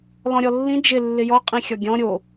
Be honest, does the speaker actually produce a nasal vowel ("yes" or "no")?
yes